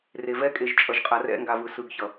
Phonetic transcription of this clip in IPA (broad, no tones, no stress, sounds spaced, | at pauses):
r e v ɛ kʼ e ʒ t͡ʃʼ ʌ ʒ qʼ a r ɛ̰ ŋ ɡ a v ɯ s ɯ ɡ ç ʌ